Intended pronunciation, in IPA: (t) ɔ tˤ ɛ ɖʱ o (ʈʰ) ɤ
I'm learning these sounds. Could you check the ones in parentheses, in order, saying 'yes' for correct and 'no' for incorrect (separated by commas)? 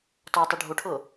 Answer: yes, yes